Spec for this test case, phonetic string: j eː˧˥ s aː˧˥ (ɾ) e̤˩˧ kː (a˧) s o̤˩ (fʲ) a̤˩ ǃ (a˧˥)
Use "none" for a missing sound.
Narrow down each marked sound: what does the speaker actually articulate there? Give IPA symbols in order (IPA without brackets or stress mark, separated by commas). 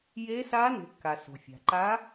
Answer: n, a˩, fʲ, a˧˥